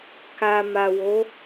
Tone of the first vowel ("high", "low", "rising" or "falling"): low